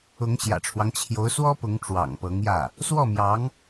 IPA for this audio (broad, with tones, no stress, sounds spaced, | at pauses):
ʊ˧˥ ŋ ɕ j ä̰˨˩ ʈ͡ʂʰ w ɑ˦ ŋ t͡ɕʰ j o˧˥ ʊ̯ s w ɔ˥ p ʊ˧˥ ŋ ʈ͡ʂ w ɑ̰˨˩ ŋ p ɤ˧˥ ŋ j ä˥˩ | s w ɔ˥˩ m j ɑ˧˥ ŋ